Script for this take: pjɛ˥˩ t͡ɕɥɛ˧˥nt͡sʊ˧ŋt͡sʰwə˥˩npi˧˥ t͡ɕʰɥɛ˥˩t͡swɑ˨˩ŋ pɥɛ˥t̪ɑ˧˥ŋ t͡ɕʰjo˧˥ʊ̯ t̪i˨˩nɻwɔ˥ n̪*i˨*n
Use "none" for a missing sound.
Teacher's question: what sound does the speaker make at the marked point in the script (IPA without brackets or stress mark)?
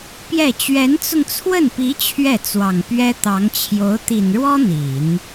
i˨˩˦